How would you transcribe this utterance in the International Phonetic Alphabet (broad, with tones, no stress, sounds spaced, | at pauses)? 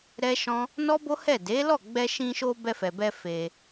ɾ ɛ˦ ʃ ɔ̃˦ | n ɔ˦ b o˦ h ɛ˦˨ d e˨˦ l ɔ˦˨ ɡ͡b ɛ˧ ʃ ĩ˧ ʃ o˧ b ɛ˧ f ɛ˨ b ɛ˧ f e˧